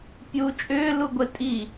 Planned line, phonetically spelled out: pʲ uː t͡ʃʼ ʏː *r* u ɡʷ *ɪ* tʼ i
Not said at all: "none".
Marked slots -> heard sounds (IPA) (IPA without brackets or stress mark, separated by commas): l, ɪ